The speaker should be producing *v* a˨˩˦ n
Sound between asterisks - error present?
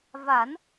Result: no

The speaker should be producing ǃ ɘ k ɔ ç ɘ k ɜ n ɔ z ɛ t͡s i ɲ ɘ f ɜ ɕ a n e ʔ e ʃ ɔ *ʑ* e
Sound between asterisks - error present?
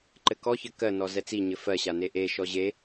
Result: no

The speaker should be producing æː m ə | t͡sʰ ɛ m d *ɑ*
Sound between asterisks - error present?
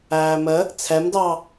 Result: no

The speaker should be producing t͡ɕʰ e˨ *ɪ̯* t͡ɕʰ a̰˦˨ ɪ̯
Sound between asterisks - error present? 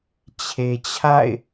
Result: yes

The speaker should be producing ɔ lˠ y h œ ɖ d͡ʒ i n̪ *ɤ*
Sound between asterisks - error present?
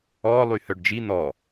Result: yes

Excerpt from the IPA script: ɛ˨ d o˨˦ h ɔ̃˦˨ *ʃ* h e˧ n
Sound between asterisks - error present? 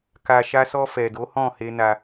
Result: yes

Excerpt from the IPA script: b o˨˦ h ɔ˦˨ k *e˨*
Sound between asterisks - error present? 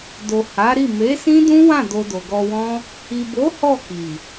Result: yes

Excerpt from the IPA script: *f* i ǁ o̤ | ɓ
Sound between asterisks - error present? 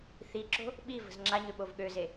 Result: yes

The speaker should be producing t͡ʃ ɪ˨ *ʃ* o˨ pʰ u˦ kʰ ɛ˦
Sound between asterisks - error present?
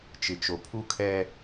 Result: yes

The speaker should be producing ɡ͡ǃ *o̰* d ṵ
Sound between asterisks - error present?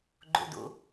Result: yes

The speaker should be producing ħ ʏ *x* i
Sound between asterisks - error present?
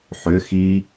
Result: no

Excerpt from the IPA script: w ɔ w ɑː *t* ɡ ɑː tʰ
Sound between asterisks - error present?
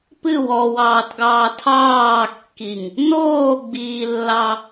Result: no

